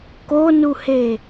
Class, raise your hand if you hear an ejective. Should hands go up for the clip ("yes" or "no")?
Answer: no